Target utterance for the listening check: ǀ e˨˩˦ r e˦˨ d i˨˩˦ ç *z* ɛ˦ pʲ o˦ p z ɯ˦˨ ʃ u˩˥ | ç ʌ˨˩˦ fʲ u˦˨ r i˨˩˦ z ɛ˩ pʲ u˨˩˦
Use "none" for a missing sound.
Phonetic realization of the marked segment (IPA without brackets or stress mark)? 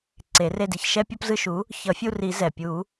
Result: ʃ